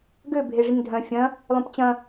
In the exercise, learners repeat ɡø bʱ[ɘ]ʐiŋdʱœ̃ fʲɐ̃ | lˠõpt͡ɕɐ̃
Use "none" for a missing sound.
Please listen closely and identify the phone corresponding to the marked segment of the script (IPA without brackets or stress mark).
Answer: e